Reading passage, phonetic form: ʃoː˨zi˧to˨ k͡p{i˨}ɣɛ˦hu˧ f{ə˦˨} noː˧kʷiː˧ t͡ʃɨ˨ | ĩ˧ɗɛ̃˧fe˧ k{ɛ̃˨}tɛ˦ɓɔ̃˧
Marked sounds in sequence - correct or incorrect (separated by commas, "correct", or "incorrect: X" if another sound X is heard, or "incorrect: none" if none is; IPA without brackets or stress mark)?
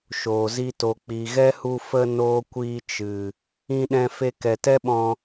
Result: correct, incorrect: ə˧, incorrect: ɛ˨